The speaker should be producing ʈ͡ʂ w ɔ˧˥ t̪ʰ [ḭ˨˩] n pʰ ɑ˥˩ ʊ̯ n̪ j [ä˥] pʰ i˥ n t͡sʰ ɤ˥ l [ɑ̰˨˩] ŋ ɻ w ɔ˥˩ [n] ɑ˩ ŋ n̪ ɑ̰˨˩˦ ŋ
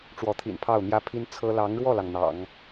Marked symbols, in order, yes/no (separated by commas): yes, yes, no, no